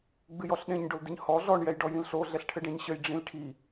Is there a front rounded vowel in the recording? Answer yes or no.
no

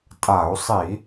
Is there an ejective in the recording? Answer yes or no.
yes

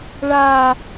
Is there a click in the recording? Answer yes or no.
no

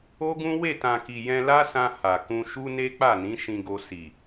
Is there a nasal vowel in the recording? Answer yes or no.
yes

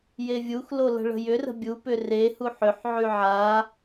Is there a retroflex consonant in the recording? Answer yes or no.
yes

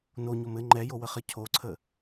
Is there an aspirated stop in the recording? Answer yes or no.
yes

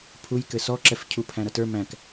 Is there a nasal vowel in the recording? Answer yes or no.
yes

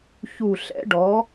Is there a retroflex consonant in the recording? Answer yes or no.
yes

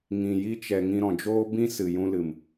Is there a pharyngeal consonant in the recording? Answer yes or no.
no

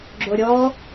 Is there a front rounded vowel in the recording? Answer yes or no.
no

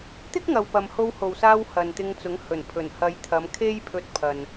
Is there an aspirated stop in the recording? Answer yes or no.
yes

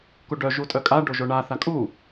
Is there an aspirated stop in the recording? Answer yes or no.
no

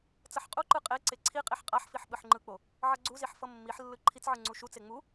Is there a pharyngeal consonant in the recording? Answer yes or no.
yes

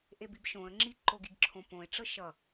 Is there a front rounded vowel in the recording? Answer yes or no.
no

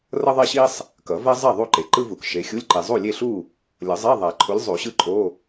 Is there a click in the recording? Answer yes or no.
yes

